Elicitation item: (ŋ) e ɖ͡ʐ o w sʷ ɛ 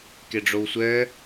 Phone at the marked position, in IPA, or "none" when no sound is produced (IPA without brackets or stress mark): k